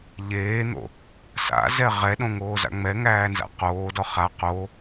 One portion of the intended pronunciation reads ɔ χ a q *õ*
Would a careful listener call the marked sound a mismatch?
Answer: yes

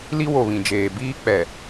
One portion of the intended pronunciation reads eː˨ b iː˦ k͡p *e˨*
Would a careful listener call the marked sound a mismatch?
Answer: yes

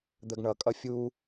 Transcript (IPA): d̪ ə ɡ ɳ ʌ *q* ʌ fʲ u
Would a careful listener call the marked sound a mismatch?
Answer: yes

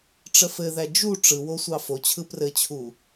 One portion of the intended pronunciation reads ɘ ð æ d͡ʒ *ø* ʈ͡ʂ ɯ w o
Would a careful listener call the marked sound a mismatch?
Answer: yes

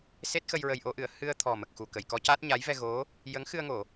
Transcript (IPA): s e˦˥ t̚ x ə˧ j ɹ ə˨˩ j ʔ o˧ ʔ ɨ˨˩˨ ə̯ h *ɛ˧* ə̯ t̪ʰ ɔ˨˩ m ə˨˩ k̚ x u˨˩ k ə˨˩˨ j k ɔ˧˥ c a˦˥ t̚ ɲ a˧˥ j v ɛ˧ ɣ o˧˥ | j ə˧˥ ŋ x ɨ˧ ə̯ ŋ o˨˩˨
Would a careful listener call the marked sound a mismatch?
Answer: yes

